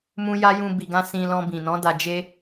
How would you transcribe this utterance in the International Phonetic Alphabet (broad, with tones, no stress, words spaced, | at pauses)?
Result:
mũ˦ja˦ jũ˧bi˨ɡã˧ sĩ˧lɔ̃˧bĩ˨nɔ̃˨˦ da˧d͡ʒe˦